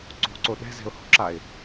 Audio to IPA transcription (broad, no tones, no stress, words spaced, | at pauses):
ǀo̤ǀo ɗɛ̤zɛ̤ʊ̯ho̤ǁaɪ̯